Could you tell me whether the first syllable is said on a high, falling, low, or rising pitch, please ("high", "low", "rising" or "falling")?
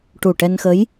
low